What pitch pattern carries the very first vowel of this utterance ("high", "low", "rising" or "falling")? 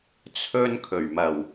high